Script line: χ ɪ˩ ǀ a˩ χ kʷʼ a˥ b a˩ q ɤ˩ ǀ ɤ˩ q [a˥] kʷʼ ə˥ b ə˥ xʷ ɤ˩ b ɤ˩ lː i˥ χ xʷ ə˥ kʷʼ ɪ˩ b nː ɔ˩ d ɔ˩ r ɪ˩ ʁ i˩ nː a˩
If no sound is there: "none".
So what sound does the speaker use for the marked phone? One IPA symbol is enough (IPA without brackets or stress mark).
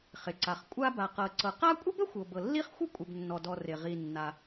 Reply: a˥